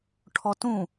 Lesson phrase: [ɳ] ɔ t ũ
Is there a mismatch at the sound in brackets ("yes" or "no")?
yes